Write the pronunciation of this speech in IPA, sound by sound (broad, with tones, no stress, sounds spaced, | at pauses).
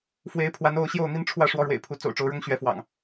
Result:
f w e˨˦ ɪ̯ pʰ w a˨˦ n o˥˨ ʊ̯ ɕ j o˥˨ ʊ̯ n̪ i˦ n ʈ͡ʂʰ w ä˥˨ ʂ w ɔ˦ ɻ w ḛ˨˩ ɪ̯ pʰ u˨˦ t͡s o̰˨˩ ʊ̯ ʈ͡ʂ o˨˦ ʊ̯ ɻ ʊ˦ ŋ ɕ ɥ ɛ˨˦ f w ɑ̰˨˩ ŋ